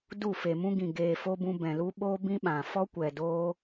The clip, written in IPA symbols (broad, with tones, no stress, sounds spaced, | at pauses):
d u˦˨ f e˨ m ũ˦ ɡ ĩ˨ ɡ eː˨ f o˧ b ũ˧ b ɛ̃˨ l u˦ ɓ oː˦ b ĩ˦ ɓ ã˨ f ɔ˦ kʷ ɛ˨ d oː˦